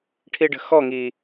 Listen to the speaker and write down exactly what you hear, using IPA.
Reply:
ʈʰ i ɖ ə̤ x ɔ ŋ i

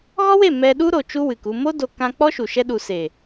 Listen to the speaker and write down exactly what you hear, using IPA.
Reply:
ɣ ɔ˦ w e˦˨ m ɛ˧ ɗ u˦ ɾ o˨ t͡ʃ u˦ w ɨ˨ k u˧ m o˦ d o˧ k ã˧ k͡p ɔ˦ ʃ u˨ ʃ ɛ˧ ɗ u˨ s e˨

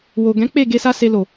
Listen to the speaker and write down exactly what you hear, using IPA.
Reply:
w o˨ ɡ ɛ̃˨˦ k͡p e˦˨ ɡ e˧ s a˧ s e˧ l o˨

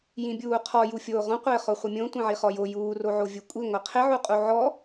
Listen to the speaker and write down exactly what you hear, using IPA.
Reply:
j ĩ bʲ uː qʰ ɔ j u fʲ oː ʁ õ qʷ ɪː χ o χʷ ɪ mʲ õ tʷ ĩ ʕ i χ ɔ j o j uː r o ʕ o vʲ u kʷʼ i ŋʷ i qʰ ɪ ʕ u qʼ u ʕ ɔ

